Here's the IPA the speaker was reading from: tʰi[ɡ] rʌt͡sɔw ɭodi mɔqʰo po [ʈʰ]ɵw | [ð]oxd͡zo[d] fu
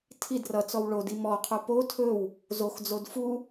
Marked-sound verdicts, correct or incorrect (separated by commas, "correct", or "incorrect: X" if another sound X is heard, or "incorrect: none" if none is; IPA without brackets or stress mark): incorrect: d, incorrect: tʰ, incorrect: z, correct